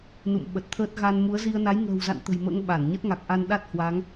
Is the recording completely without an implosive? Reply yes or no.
no